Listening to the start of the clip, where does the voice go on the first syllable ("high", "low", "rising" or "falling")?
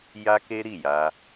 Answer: high